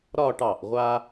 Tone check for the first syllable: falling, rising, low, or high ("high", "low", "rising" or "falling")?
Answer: falling